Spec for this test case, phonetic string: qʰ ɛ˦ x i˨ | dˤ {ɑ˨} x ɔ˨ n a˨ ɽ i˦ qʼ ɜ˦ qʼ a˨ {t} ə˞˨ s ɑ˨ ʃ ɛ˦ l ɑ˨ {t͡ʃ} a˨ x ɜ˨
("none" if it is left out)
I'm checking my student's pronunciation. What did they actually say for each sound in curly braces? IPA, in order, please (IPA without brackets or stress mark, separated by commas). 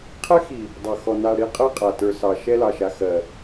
ɑ˨, t, ʃ